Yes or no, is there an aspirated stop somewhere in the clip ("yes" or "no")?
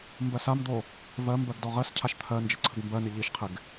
yes